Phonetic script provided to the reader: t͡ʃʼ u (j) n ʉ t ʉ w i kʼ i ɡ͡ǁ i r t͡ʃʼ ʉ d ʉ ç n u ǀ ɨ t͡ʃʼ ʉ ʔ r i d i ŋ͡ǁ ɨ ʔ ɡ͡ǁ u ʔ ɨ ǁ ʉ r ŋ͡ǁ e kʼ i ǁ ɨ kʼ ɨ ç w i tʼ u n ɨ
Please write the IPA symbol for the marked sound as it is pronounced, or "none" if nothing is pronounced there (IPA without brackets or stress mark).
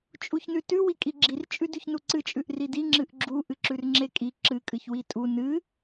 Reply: ç